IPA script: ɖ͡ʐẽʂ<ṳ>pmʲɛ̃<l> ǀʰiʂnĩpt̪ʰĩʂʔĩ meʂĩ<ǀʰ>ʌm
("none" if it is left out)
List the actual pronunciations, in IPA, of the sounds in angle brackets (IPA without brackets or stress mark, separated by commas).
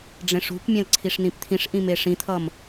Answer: ṳ, l, t̪ʰ